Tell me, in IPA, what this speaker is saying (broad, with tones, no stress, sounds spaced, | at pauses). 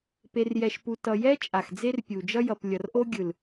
p e˧ r j ɛ˧ ʃ p u˧ t ʌ˨ j ɛ˦ t͡ʃʼ a˨ x d͡z e˦ r pʲ u˨ d͡ʒ ʌ˦ j ʌ˨ p lʲ ʌ˨ r ʔ o˦ ɡʲ ɯ˨ l